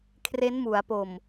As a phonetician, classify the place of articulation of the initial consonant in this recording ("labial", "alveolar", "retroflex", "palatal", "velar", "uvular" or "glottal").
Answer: velar